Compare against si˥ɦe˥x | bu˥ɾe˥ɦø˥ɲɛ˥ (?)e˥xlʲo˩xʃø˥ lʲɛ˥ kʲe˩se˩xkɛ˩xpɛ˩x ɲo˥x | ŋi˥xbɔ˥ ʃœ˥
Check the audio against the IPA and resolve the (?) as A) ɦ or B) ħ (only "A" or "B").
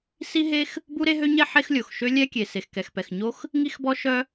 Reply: B